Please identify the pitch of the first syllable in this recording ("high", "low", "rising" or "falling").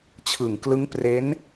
low